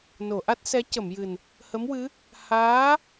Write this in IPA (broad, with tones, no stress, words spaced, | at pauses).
no˨˩˨ʔa˦˥t̚sɛ˧˥ cə˨˩˨mjɨ˨˩n | hə˧˥mwɨ˧˥ | haː˧˥